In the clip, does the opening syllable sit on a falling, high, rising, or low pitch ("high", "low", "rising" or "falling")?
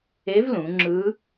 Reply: rising